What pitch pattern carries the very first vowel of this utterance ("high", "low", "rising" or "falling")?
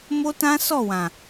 high